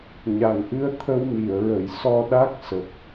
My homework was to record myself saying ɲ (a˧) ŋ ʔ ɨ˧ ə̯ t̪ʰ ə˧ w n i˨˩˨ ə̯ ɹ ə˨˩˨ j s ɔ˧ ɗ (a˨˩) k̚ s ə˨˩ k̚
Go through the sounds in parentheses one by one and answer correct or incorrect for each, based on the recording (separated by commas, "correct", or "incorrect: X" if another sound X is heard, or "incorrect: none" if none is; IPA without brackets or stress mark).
incorrect: a˨˩, incorrect: a˦˥